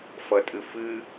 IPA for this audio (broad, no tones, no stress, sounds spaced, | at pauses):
f ʌ tʼ ɨ f ɨ